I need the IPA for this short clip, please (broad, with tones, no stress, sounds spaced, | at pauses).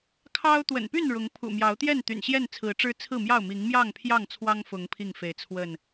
kʰ ɑ˦ ʊ̯ t̪ w ə̰˨˩ n p y˥˨ n ɻ ʊ˨˦ ŋ pʰ ṵ˨˩ m j ɑ˨˦ ʊ̯ t̪ j ɛ˥˨ n t̪ y̰˨˩ n ɕ j ɛ˥˨ n t͡sʰ ɹ̩˨˦ ʈ͡ʂ ɻ̩˦ t͡sʰ ɹ̩˥˨ m j ɑ˥˨ ʊ̯ m i˨˦ ŋ m j ɑ˥˨ ŋ pʰ j ɑ˥˨ ŋ t͡sʰ w ɑ˦ ŋ f ʊ˨˦ ŋ pʰ i˥˨ ŋ f e˨˦ ɪ̯ t͡sʰ w ə˥˨ n